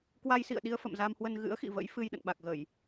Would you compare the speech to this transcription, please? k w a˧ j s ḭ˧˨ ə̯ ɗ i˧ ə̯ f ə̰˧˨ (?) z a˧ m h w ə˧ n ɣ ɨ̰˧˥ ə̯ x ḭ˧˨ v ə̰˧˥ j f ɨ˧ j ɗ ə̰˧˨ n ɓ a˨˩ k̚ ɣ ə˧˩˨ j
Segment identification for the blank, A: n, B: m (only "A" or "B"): B